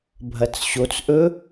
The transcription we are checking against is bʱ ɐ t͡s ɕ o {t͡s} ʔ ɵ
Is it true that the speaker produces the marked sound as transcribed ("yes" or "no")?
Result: yes